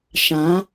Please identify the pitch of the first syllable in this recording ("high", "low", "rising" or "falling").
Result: rising